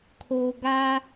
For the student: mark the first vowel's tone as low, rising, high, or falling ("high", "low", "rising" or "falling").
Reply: low